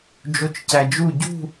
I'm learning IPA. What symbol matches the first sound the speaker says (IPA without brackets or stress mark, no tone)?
d͡ʒ